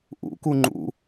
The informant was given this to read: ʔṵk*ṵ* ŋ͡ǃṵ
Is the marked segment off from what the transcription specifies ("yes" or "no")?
yes